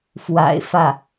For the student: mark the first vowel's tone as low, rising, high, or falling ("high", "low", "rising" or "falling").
low